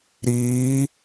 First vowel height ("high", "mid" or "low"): high